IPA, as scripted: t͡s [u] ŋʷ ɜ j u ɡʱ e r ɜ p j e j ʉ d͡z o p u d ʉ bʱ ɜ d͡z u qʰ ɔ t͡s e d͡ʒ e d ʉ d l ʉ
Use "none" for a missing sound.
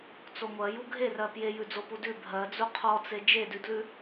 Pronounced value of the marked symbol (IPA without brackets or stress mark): o